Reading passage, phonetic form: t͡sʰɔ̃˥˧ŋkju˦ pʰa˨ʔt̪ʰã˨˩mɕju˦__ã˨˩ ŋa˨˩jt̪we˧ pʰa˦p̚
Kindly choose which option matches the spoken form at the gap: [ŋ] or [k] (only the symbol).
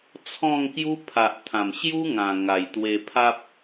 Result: ŋ